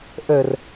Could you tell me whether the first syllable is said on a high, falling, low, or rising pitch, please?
low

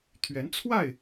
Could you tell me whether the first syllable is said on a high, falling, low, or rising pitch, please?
rising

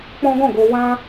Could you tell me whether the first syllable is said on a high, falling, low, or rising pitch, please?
high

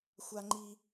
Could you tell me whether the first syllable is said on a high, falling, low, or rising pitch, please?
high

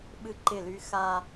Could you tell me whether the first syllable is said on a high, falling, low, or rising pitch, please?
high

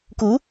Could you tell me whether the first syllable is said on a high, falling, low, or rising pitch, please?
rising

